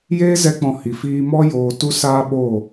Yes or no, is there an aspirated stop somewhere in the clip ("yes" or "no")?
no